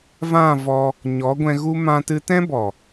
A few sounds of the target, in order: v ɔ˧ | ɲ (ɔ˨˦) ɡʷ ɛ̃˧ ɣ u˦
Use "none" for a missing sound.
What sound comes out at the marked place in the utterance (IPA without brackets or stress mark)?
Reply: ɔ˨˦